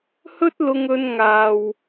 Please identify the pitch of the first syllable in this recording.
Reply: high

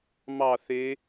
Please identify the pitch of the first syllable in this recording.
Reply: falling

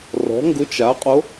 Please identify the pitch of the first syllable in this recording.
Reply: rising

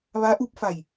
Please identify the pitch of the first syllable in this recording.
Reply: rising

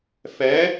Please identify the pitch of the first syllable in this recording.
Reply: rising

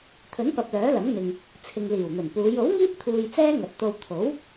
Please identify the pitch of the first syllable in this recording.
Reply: rising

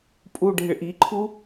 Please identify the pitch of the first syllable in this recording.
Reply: low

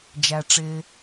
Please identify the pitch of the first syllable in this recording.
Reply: low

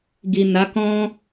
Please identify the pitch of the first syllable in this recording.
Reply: low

